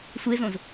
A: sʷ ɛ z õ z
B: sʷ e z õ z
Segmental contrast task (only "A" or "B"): B